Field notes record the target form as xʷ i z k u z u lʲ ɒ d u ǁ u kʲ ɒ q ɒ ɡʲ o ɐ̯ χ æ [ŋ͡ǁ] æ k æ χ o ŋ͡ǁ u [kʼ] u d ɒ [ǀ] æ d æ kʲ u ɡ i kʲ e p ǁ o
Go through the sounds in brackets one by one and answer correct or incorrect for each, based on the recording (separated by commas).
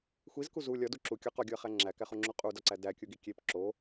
correct, incorrect, correct